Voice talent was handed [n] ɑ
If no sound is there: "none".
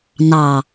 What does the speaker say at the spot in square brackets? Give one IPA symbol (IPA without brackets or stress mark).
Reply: n